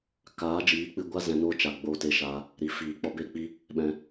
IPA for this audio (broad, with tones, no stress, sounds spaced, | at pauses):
k aː˨˦ d͡ʒ iː˨˦ k͡p ɨ˧ ɡʷ a˦ z ɛ̃˧ n oː˦ t͡ʃ a˨ ɡ͡b oː˧ t e˧ ʃ aː˧ | ɾ i˨ f iː˨ k͡p ɔ˧ b e˦ k͡p i˦ | ɓ ɛ̃˧